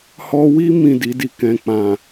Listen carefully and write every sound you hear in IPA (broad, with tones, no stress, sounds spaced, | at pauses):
h ɔ˧ w i˦ m ĩ˦˨ d i˨˦ d i˧ k ɛ̃˧ k͡p ã˨